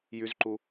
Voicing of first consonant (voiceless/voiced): voiced